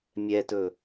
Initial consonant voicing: voiced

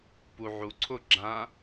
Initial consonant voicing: voiceless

